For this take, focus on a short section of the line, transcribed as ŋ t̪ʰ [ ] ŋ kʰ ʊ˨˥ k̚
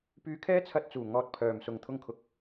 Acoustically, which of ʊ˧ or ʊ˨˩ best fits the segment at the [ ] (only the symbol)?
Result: ʊ˧